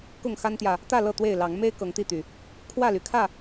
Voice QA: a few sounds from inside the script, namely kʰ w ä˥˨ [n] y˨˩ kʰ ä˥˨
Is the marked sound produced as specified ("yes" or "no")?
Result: no